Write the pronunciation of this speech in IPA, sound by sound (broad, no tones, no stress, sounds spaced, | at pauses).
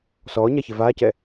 s ɔː ɲ a ç e v aː c ɛ